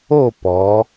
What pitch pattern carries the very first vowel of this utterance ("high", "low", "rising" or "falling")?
falling